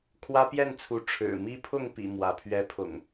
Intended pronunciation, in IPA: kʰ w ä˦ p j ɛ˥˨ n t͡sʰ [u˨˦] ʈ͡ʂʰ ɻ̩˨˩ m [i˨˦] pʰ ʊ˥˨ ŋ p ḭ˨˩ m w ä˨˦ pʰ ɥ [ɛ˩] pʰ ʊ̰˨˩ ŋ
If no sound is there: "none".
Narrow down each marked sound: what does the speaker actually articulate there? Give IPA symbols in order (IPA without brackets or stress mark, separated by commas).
u˨˦, i˦, ɛ˦